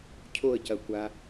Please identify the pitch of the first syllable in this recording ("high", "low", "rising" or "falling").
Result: falling